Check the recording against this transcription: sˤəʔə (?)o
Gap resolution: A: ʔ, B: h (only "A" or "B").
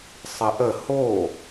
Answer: B